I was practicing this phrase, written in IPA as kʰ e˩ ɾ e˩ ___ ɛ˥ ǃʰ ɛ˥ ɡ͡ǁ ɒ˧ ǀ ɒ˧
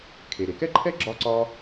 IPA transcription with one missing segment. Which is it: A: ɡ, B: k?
B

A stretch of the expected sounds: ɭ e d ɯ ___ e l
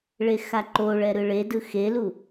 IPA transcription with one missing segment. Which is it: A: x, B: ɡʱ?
A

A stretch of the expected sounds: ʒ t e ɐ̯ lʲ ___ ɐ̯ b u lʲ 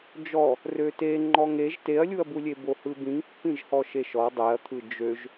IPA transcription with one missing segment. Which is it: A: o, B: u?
B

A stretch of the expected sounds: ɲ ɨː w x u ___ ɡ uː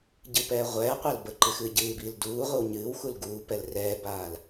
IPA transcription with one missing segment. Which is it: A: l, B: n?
A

